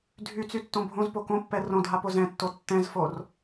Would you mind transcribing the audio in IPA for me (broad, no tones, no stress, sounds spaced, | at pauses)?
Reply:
dʱ y t͡s y tː õ bʱ õ z p o k õ pː ɛ r õ dʱ a p o z ɛ̃ tː o tː ɛ̃ z f o r